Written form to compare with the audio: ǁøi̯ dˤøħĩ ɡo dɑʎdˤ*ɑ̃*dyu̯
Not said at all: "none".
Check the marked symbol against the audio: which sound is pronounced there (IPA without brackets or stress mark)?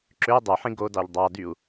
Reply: ɑ